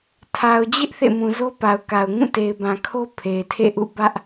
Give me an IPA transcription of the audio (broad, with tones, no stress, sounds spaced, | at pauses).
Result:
tʰ a˨ ʊ̯ d͡ʑ ɪ˦ ʔ θ ḛ˦˨ m ũ˨ z o˦ p a˨ ʊ̯ k a˨ ʊ̯ ŋ ũ˦˨ t e˨ ɪ̯ b ã˨ kʰ o˦ pʰ e˨ ɪ̯ tʰ ḛ˦˨ ʔ ṵ˦˨ b ä˦ ʔ